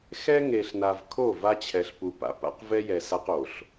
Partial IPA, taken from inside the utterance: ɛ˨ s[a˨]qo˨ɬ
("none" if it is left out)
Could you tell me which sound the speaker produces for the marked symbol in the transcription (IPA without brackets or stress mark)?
a˦